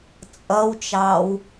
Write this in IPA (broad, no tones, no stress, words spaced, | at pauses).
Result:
t͡sʼʌwt͡ʃɑw